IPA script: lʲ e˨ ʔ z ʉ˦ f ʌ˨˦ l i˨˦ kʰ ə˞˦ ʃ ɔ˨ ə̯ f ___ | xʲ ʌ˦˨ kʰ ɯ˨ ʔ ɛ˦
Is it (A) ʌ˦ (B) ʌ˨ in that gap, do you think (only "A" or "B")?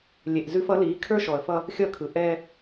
A